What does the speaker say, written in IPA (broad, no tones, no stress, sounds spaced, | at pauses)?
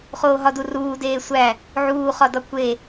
χ oː ɦ ɒ d u r uː d eː sʷ æ | ʕ uː χ ɒ d ɒ kʷ e